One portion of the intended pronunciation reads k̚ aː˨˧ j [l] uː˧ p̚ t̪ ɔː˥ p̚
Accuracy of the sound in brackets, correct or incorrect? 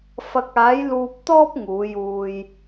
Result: correct